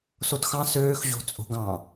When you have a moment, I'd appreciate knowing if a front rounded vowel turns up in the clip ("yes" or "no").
yes